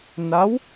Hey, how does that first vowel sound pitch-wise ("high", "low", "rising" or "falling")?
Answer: rising